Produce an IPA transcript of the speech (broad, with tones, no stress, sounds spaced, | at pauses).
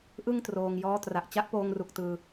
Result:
ʔ ɯ˥˩ ŋ t r oː˧ ŋ j ɔː˦˥ t r a˨˩ ʔ t͡ɕ a˦˥ ʔ p oː˧ ŋ r u˨˩ k̚ t ɯː˧